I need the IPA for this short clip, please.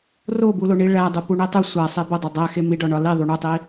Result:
r o b u l o ɳ i ɭ æ dˤ u p u ɳ e tˤ u sʷ æ sˤ e b o dˤ o dˤ æ x e m i ɖ ɒ ɳ ɒ l i ðˤ u ɳ u tˤ i

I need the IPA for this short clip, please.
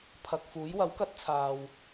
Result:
pʰ ɐ˨ k̚ f uː˨˥ j w ɐ˨˥ w k ɐ˥ t̚ t͡sʰ aː˨ w

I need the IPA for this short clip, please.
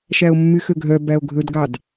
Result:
ʃ æ o̯ mː y x ø ɡʱ œ b æ o̯ ɡʱ ɵ d ɡ ɑ d

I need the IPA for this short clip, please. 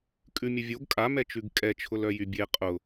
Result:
kʼ ʉ mʲ ə vʲ o ɡ kʼ a m ɛ t͡ʃ ʉ ɡ kʼ ɛ t͡ʃʰ ʊ l œ j y bʲ e qʼ ʊ

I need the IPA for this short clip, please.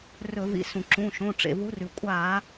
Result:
r ɵ˧˩˧ v ḭ˨˦ s ũ˩ ǁ ũ˩˧˩ ʃ õ˩˧˩ ʈ͡ʂ ḛ˩ v u˨˦ r ʉ˩ kʷʼ a˧˩˧

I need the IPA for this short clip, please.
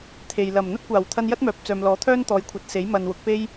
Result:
t̪ʰ e˨ j l ɐ˨˩ m n̪ ɐ˥ t̚ kʷ aː˨˩ w t̪ʰ ɐ˧ n j ɐ˥ t̚ m œː˨ p̚ t͡s œː˨ m l ɔː˨˥ t̪ʰ œː˥ n t̪ ɔː˨˧ j kʷʰ ɐ˨ t̚ s e˨˥ j m ɐ˨ n w ʊ˨˥ k̚ p e˥ j

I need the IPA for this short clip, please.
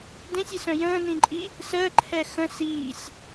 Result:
d ẽ sʲ i s œ̃ j ə̃ː n ĩ ǃʼ i | s əː ǃʰ ɛ x ə̃ s iː sʲ

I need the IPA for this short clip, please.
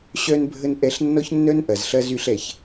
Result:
ɕ œ˧ n bʱ ə˧ n ʔ ɛ˧ ɬ nː ɔ˦ ç nː œ˦ n ʔ ɐ˨ z ɬ ɐ˦ z y˧ ɬ ɛ˨ ç

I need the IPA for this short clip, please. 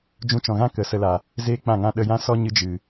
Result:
d͡ʒ ũ˧ t͡ʃ ɔ̃˨ ɣ ã˦ k ə˨˦ s ə˧ l a˨ | z eː˦ k͡p ã˦˨ ŋ ã˦ ɗ ə˧ j ã˦ s ɔ˦ ɲ ɨ˧ d͡ʒ ɨ˨

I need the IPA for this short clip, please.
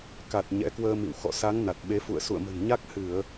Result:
k a˨˩ t̚ ɲ ɛ̰˧˥ k w əː˧ m ḭ˧˨ w x ɔ̰˧˨ s a˨˦ ŋ n a˨˩ t̚ ɓ e˨˦ f ṵ˧˨ ə̯ s ṵ˧˨ ə̯ m ə̤˨˩ n ɲ a˦˥ k̚ h ɨ˧˩˨ ə̯

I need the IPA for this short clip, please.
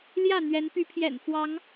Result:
l j ä˥˨ n̪ ɥ ɛ˨˦ n p y˨˦ pʰ j ɛ̰˨˩ n f w ɑ˨˦ ŋ

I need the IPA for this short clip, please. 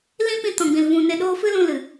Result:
l ĩ˦ p ĩ˧ t ɔ̃˨ ɡ͡b ĩ˨ l v ũ˨ n e˧ ɗ oː˦ f ɨ˦ l ũ˧ l ɨ˨

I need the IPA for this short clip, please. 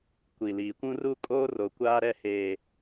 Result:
kʷ i˨ l iː˨ kʷ ũ˦ r u˦ kʼ oː˦ r o˨ kʷ aː˦ ɾ ɛ˦˨ h eː˨

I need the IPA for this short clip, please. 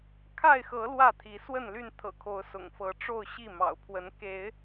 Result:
kʰ a˥˨ ɪ̯ x ɤ˨˦ l w ä˥˨ t̪ʰ i˨˦ s w ə˥˨ n l y˥˨ n t̪ʰ ɤ̰˨˩ kʰ o˨˦ ʊ̯ s ʊ̰˨˩ ŋ f ɤ˨˦ ʈ͡ʂ o˥˨ ʊ̯ ɕ i˥˨ m ɑ̰˨˩ ʊ̯ pʰ w ə˨˦ n k e˨˦ ɪ̯

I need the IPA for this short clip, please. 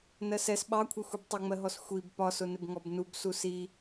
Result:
n ɜ s ɛ s ɓ ɑ kʷʰ ɛ xʷ i b tˤ ʊ ŋ͡m ɜ ɦ ɔ s xʷ i b p ɒ s ʊ n ɪ b ŋ ɔ b n u b s u s i

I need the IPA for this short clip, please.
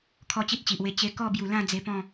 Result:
kʰ ɔ˦ t͡ɕ i˦ t̚ t͡ɕ i˨ ʔ w e˧ t͡ɕ e˧ k ɔ˥˧ b j u˨˩ l ã˥˧ d͡z e˧ p ɔ̃˥˧

